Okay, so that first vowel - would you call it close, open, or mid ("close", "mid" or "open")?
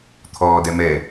mid